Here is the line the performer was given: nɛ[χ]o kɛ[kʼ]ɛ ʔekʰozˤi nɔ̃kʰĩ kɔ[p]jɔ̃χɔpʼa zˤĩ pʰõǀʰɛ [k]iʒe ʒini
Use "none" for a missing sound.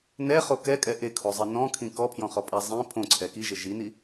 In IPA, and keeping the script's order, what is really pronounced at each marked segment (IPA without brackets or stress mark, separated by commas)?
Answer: χ, kʼ, pʰ, k